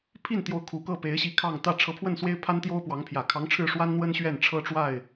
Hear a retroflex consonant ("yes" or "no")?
yes